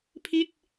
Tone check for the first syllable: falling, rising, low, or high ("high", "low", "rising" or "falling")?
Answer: falling